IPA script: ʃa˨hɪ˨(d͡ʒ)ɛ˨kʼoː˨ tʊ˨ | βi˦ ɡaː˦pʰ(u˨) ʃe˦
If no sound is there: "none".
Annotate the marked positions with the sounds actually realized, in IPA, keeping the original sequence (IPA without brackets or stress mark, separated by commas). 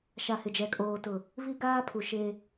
d͡ʒ, u˨